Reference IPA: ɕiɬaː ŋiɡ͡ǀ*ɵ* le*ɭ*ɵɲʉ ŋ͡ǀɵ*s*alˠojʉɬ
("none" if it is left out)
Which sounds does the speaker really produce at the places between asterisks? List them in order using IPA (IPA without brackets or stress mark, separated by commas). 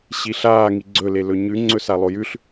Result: ɵ, l, s